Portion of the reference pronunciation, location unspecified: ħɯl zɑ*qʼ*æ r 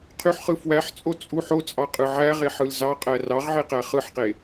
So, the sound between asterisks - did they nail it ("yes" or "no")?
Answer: yes